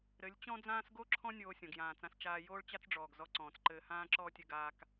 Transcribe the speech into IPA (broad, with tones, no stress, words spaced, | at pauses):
ɾɘ˨˦lʲ t͡ɕɔ̃˦d͡zãː˦s ɡo˦ǁʰɔ̃˦ nʲoː˧sʲɔ̃˨ɡjãː˨t͡sã˧s t͡ʃaː˧ joː˦ɭt͡ɕa˦t͡sɖ͡ʐɔː˨ɡ zɔ˧ǀɔ̃ː˨t͡sǃɘː˧ hãː˦ǁɔː˦tʲɘ˧ ɡaː˦k